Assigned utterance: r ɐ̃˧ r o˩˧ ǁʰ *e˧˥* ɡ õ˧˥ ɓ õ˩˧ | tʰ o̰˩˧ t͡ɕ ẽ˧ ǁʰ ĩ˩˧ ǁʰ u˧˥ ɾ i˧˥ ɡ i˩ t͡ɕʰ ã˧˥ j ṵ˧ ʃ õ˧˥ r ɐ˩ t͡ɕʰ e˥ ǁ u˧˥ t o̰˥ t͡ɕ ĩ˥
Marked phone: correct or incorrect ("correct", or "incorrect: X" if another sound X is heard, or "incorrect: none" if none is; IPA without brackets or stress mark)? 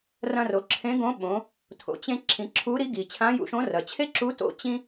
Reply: incorrect: ẽ˧˥